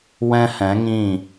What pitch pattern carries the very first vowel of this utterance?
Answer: high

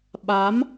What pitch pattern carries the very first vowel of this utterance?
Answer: rising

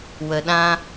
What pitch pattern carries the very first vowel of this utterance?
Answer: low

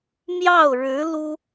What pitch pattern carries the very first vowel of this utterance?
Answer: falling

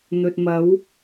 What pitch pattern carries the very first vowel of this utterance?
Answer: low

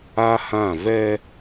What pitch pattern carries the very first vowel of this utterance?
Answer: high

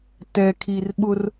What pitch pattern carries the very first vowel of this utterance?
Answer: low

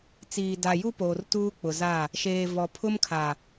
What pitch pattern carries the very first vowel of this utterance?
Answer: low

